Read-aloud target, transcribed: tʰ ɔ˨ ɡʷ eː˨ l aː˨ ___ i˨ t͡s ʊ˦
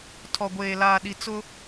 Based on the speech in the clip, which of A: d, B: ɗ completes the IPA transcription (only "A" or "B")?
B